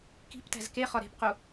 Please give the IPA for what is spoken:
k i̤ p t æ̤ z k e χ ɒ ɾ e̤ p q u

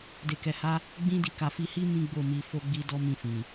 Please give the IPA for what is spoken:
d e˧ k ɛ˧ h a˦ | ɡ͡b ĩ˦ d i˦˨ k a˧ f i˧ h i˦ m ĩ˦ ɡ͡b o˦˨ m i˧ f o˦ ɡ͡b i˦ d ɔ˦ m ĩ˧ f ĩ˨

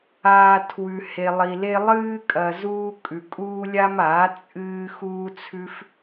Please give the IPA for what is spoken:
aː˧ tʰ w ʉ˧ h e˧ lˠ i˧ l e˦ lˠ ɨː˦ kʼ ɐ˧ z uː˦ kʼ ʉ˧ kʼ uː˦ lʲ a˦ m aː˨˦ t͡sʼ ɨː˦ x uː˦ t͡sʰ ʉ˦ f

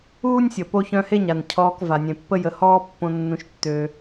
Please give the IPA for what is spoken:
uː˥ nʲ sʲ ə˩ p o˦ ç œ̃˦ h e˥ ɲ a˩ n cʰ ɔː˨ k v a˩ nʲ ẽ˩ pː ə˥ j ə˩ h ɔː˦ pː õ˨ nː ũ˩ ʃ tː ø˩

